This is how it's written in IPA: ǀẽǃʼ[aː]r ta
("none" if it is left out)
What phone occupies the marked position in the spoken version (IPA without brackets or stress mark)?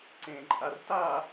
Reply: a